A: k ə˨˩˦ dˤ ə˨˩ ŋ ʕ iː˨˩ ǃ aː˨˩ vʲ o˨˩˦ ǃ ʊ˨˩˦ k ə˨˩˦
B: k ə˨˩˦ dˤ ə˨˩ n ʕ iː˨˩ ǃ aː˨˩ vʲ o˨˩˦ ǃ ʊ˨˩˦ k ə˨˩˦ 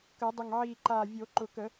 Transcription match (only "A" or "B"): A